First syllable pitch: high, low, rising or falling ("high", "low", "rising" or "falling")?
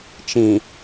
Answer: low